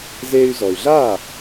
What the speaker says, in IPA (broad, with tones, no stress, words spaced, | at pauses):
zeː˧y̯zɔ˩y̯ɮaː˥˩